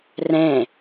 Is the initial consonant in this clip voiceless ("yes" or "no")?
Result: no